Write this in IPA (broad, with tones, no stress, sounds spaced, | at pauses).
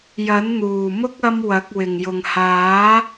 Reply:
j ɐ˨˥ n n̪ uː˨˩ m ʊ˥ k̚ ɐ˥ m w ɐ˨˥ k̚ w ɪ˨˩ ŋ j ʊ˨˩ ŋ h aː˨˥